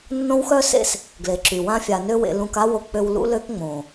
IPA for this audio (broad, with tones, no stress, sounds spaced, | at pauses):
nː õ˦ w x œ˦ s ḛ˦ s | ɡ l e˨ ǁ y˨ w ã˦ fʲ a˧ n ø˦ w ḛ˧ l ũ˧ k a˦ w o˧ k͡p ø˧ w l ṵ˦ l ø˦ k ŋ͡m õ˨